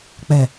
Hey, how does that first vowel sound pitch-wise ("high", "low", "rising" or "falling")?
low